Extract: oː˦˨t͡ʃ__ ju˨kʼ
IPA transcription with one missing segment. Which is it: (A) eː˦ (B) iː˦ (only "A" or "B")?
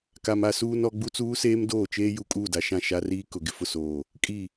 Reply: A